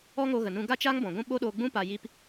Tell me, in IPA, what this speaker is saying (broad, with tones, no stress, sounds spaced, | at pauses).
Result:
ɔ˦ ŋ o˧ ɣ ə˨ n ũ˧ ɡ a˦ t͡ʃ a˦ ŋ b ɔ̃˨ ɡʷ ũ˦ ɓ o˦ ɗ oː˧ ɡ͡b ũ˦ p a˧ j i˦ p